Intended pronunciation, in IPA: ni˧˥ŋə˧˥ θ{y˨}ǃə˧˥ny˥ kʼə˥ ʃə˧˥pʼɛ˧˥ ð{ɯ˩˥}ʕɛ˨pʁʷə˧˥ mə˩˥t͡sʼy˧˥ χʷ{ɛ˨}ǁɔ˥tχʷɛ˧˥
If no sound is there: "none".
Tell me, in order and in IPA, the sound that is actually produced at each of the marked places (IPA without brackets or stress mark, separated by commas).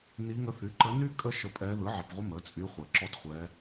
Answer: y˩˥, ɯ˩˥, ɛ˨